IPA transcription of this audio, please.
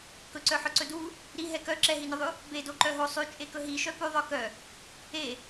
k ɵ ǀ œ ħ œ ǀ ɵ d u | ɾ i ɦ ɛ k œ ǁ ɛ ɦ i n ɵ ðˤ ʉ | b e d o ǃ œ ɦ o sˤ ʉ t͡ʃʼ e k ɵ ɦ i ʃ œ p ʉ ðˤ œ k œ | e

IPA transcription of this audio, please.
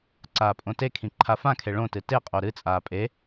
ǀ aː pʼ õ t e kʰ ĩ ǃʰ a f ã kʰ e ɭ õ t ɨ t e qʼ o ɾ ɨ t͡sʼ aː pʼ e

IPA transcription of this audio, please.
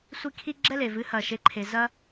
sʷ i˥ kʰ i˥ ɡ͡ǁ ɛ˥ l e˩ v ɨ˩˥ h ɐː˩ ʃ e˩˥ ǃʰ e˩ z ɐ˥

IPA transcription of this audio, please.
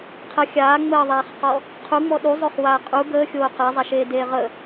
qʰ ə xʲ aː ŋ͡m əː ðˤ aː χ q ɔ | qʰ u ŋ͡m ɔ ɗ u zˤ o χ w aː qʼ u ɡ əː xʲ oː q a zˤ a ʃ eː d eː ʁ ə

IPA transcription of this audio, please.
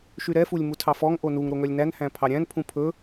ʃ y ɾ ɛ f u lʲ m u tʰ ɑ f ɔ ŋ ʔ o n u ŋ ɾ o ŋ œ lʲ n æ n h æ̃ pʰ ɑ ɾʲ æ̃ n pʰ ũ pʰ ɵ

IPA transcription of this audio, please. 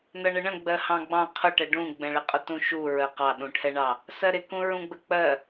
n ʌ ɳ ə ɳ ə̃ ɡ͡b ɜ h ɑ̃ ɡ͡b ɑ̃ qʰ ʊ ʈ ɛ ɖ ũ ɡ͡b ɛ̃ ɭ ɪ qʼ ʊ t ũ ʃ u ɹ ɜ q ɑ ɗ ũ ʈʰ ɛ ɳ ɑ | s ɜ ɾ ɪ k ũ ɹ ũ ɡ͡b ə k͡p ɜ

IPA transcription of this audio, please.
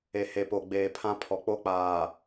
e˨ h e˨ p o˨ ɡ͡b eː˨ pʰ ã˦ pʰ ɔ˨ k͡p o˦ k͡p aː˨

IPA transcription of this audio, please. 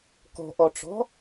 k ɔ̤ ʔ ɔ ʈ͡ʂ ɔ̤

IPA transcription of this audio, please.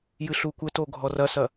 j ɨ ɬ u kʷ ɘ t o ɡʱ ɔ r ɐ s ɐ

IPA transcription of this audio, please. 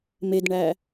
m e d ɳ æ

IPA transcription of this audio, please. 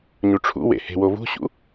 ɲ u ʈ͡ʂʰ ṵ w ḛ h e̤ w o v ṳ ɕ ṵ

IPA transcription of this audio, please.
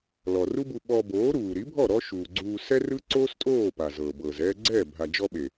l ɔ˨ r u˦ b u˧ ɓ ɔː˧ b oː˨˦ ɾ uː˨ ɾ i˨˦ bʱ ɔ˦˨ ɾ ɔ˦ ʃ uː˨ ɡ͡ǀ uː˧ s ɛ˦ r ɯ˦ ǀ oː˦ s tʼ oː˦˨ p a˨ z ɤː˨ b ɤː˨ z ɛː˧ ɡ͡ǀ ɛː˦˨ bʱ a˨ d͡ʒ ɔ˧ ɓ e˨

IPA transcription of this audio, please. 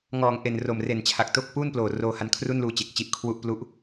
ŋ ɔː˨˩ ŋ ʔ e˨˩ n r o˨˩ m r e˨˩ n t͡ɕʰ a˨˩ k̚ t o˥˩ k̚ p uː˥˩ n p l oː˨˩ r oː˧ h a˧ n kʰ r u˥˩ n l uː˧ t͡ɕ e˨˩ k̚ t͡ɕ i˦˥ ʔ kʰ w u˥˩ ʔ p l u˥˩ ʔ

